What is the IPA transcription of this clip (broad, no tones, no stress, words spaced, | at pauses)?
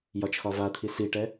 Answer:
jɒt͡ʃxɒvat̪ʰi siʈɛ